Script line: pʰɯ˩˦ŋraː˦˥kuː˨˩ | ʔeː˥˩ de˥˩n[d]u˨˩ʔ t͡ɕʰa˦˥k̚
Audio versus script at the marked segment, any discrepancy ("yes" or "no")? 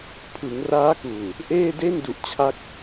no